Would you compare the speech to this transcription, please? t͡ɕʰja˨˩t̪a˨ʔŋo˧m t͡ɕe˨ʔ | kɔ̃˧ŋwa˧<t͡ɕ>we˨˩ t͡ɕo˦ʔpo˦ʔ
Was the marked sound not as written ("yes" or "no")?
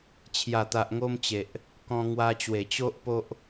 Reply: no